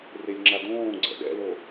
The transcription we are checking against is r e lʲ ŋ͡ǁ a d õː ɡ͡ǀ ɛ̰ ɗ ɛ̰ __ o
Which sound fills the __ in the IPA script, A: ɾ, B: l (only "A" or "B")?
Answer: B